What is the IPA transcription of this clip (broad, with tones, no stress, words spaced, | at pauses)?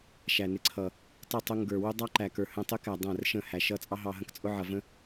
ʃæ˨nɪ˧ǀʰʌ˨ | tˤɪ˦˨ tˤʊ˧ ŋɡə˞˨wʊ˦ dˤɑ˦ǃæ˨kə˞˨ hə̃˧tˤɪ˦kæ˨ dˤæ̃˦˨rʃə̃˦˨hæ˨ ʃʌ˧ t͡sʼɑ˦ɦɑ˧ɦə̃˧k t͡sʼʊ˦ʕʌ˨və̃˦